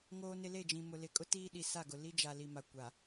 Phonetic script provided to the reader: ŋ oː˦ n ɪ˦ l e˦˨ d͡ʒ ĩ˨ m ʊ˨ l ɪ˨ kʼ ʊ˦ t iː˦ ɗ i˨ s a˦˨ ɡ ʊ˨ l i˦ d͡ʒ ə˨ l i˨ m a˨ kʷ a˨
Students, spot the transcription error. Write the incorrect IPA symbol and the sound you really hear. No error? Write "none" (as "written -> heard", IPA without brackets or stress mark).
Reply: ə˨ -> a˨